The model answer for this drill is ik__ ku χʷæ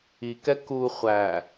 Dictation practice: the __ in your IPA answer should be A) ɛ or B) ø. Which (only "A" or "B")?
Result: A